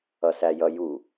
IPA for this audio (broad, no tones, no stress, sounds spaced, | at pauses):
ʌ s æ j ʌ j u